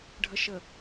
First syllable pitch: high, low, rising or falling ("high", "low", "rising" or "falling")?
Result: low